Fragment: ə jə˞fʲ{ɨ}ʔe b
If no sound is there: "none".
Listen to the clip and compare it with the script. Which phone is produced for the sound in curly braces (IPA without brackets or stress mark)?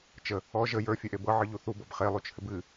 e